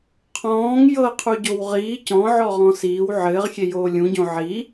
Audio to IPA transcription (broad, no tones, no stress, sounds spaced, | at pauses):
qʰ ɔ̃ː ŋ j ɤ qʰ u ɟ o w ʁ iː c ɔ̃ ʕ ɔ ʁ ɔ̃ s iː w ʕ ɘː ʁ xʲ e j oː lʲ ũ ɟ õ ʕ i